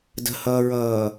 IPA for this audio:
d ə̤ h ʌː ɹ ʌː

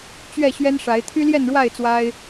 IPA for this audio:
t͡ɕ ɥ ɛ˥˨ ɕ ɥ ɛ˦ n ʂ a˨˦ ɪ̯ t̪ʰ y˦ l j ɛ˥˨ n ɻ w a˥˨ ɪ̯ t͡s w a˦ ɪ̯

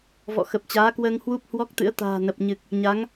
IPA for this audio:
v ɔ̰˧˨ x ə˨˩ p̚ t͡ɕ aː˨˦ k w əː˧ ŋ h w u˦˥ p̚ h w ɔ˦˥ k̚ t̪ ɨ̰˧˥ ə̯ t̪ a̤ː˨˩ n ə˨˩ p̚ ɲ ɨ˨˩ k̚ | ɲ a˨˦ ŋ

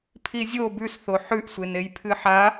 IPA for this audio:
pʰ i zʲ o b ʉ s θ o ħ ʉ ʔ sʷ e n e j pʰ ɨ ħ a

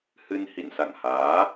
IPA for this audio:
h ɨ˧ n h ḭ˧˨ n s a̰˧˨ ŋ h aː˨˦

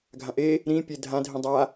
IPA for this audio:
ɡʱ ã ʔ e | ɾ ĩ pʲ e dʱ ã dʱ ĩ dˤ a

